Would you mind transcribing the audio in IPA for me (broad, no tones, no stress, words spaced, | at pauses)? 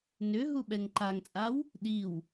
nʏ ɦuɓɛŋǃaŋt͡sʼaw | ɗiw